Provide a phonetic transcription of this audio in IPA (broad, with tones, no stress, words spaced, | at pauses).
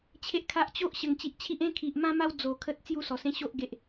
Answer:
t͡ɕʰe˦ʔkʰa˦ʔ t͡ɕo˦ʔ ɕə˨˩ŋt͡ɕi˨ʔt͡ɕʰi˦ʔ ẽ˦kʰi˨ʔmã˦ma˦w d͡zo˨˩ kʰə˦t̚ t͡sju˥˧sɔ˨˩sẽ˦ ɕo˦ʔɡe˨ʔ